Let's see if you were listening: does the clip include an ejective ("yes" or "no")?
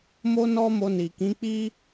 no